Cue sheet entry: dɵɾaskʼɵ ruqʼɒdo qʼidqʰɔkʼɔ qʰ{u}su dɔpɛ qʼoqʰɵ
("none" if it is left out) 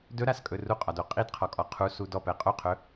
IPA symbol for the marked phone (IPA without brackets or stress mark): u